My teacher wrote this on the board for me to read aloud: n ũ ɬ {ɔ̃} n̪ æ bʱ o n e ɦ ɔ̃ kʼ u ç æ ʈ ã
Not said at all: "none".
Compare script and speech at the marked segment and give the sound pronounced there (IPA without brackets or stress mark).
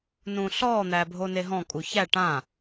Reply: ɔ